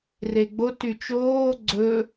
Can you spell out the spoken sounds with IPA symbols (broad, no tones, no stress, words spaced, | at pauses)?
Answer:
reɡ͡bo tyt͡ʃoː ɡ͡ǀɵ